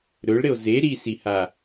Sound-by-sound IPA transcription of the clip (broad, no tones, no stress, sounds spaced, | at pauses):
ɾ ɵ ɭ ɾ ɘ o̯ z e ɾ i s i h a